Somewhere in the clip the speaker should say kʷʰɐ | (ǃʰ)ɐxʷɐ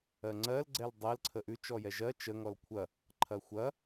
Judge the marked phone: correct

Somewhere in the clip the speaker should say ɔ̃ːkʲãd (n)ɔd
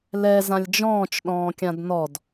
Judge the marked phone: correct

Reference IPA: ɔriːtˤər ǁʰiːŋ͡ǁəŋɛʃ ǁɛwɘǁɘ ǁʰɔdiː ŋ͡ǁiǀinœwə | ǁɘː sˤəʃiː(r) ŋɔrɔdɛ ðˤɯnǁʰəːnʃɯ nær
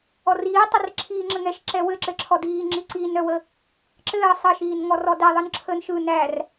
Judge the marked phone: incorrect: n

